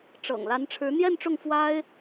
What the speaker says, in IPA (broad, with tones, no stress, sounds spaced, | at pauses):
ʈ͡ʂ ɤ̰˨˩ ŋ l a˧˥ n ʈ͡ʂʰ ɻ̩˧˥ n̪ j ɛ˥˧ n ʈ͡ʂ ʊ˥˩ ŋ f w a˥ ɪ̯